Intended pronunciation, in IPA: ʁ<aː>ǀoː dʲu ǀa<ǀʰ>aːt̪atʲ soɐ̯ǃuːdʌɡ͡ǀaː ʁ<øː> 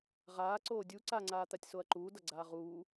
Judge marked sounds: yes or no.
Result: yes, no, no

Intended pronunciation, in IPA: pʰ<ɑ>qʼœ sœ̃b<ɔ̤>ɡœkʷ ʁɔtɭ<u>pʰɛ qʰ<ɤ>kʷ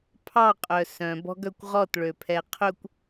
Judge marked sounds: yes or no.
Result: yes, yes, no, no

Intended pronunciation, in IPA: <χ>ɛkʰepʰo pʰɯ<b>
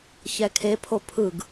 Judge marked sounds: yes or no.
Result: no, no

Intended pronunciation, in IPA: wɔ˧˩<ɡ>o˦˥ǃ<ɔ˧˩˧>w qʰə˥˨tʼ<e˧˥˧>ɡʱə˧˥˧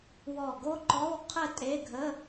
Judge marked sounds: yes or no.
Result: yes, no, yes

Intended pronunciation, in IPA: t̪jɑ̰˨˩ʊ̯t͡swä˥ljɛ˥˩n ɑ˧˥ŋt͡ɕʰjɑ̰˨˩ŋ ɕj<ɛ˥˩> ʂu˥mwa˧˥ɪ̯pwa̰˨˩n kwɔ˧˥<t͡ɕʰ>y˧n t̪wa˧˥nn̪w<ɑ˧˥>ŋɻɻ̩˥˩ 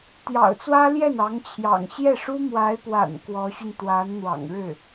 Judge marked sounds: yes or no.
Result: yes, no, no

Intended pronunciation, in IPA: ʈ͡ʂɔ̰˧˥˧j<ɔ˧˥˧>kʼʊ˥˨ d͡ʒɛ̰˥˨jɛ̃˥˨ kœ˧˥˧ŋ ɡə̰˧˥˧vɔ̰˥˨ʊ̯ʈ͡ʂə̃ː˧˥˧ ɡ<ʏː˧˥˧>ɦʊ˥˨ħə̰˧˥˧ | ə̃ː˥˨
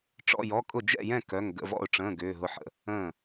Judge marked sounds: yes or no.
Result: yes, yes

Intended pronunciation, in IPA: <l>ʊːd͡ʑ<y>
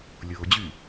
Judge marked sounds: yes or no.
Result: no, yes

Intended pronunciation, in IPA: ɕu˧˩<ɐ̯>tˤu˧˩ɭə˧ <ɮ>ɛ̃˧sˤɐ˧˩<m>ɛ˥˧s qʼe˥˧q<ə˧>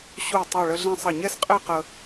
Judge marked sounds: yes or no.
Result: no, yes, no, yes

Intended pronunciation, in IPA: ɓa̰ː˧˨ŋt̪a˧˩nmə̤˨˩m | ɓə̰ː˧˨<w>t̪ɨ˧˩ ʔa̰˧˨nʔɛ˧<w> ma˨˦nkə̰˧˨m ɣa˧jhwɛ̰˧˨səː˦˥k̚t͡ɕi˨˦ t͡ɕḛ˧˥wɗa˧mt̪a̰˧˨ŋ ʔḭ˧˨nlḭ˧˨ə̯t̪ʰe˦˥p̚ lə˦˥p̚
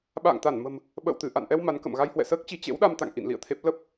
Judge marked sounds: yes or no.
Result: yes, yes

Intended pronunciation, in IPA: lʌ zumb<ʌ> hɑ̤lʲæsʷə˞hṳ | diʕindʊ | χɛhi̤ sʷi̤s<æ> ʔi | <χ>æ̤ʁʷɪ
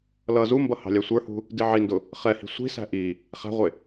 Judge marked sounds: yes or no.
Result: yes, no, yes

